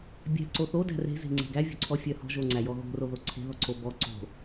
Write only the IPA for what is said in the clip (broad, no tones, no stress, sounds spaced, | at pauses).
bʲ æ̤ ǀ o θ o d æ̤ r e̤ z e̤ ŋ͡ǀ e̤ ɡ æ vʲ ɔ̤ ǀʰ ɔ fʲ œ h ɔ̤ ʒ o ŋ͡ǀ æ j ɔ ɣ o̤ r o ð o ǀʰ e̤ ð ɔ ǀ o b ɔ ǀ o̤